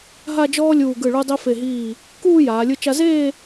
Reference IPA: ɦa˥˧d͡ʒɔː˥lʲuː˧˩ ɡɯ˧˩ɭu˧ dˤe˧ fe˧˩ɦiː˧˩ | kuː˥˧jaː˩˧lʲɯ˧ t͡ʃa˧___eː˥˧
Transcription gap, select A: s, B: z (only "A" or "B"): B